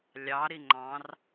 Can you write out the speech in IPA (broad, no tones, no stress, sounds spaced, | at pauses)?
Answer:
lʲ ɑ ɾ i ŋ͡ǃ ɑ̃ r